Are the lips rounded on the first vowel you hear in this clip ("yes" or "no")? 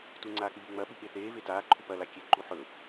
yes